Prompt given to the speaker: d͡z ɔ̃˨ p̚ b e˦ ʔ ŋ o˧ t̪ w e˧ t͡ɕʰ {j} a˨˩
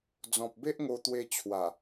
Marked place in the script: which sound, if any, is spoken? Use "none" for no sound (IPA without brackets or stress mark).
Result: w